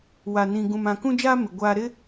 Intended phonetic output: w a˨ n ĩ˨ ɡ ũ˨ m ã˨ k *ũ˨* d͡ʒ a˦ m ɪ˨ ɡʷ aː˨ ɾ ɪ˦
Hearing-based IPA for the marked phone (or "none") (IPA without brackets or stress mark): ũ˦